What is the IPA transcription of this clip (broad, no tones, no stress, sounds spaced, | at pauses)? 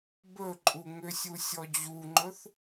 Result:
b ɵ ǃʼ u ŋ ʏ sʲ u sʲ ɔ d͡ʑ u ŋ͡ǃ ɵ θ